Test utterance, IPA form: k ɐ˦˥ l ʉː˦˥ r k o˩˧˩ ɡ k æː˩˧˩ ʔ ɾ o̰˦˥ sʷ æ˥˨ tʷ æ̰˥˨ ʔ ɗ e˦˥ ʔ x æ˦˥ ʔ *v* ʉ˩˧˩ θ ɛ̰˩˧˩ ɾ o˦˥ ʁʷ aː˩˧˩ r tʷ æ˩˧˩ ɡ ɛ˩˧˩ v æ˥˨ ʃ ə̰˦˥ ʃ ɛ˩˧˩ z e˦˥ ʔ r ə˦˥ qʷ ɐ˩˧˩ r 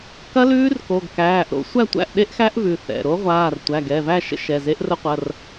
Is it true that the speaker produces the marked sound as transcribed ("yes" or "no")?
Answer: yes